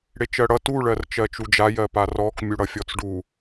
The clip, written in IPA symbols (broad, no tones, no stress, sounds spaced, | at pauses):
ɽ e t͡ʃ ɜ ɽ ʌ t u ɭ ɜ r t͡ʃ ɜ t͡ʃ u d͡ʒ a j ɜ p a r ɔ k mʲ u ɽ ʌ fʲ ɔ t͡s ɖ u